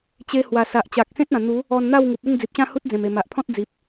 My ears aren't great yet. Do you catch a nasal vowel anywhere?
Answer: yes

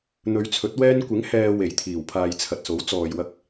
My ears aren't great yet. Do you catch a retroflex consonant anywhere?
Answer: no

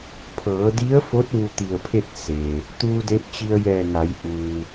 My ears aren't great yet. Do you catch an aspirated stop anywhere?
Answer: yes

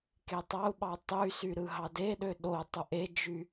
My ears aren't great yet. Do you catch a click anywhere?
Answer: no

